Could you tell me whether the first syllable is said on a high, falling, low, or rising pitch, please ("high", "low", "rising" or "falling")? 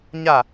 falling